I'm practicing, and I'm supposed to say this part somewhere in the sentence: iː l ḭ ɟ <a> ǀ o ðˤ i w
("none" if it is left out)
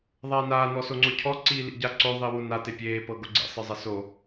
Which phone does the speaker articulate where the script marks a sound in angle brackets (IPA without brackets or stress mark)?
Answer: a